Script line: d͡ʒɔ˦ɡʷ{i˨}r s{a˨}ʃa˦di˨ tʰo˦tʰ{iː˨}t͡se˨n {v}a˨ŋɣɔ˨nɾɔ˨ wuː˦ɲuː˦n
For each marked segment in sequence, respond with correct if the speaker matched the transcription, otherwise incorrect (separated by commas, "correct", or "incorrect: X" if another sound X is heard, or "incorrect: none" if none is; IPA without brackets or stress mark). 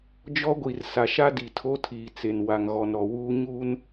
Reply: correct, correct, correct, incorrect: w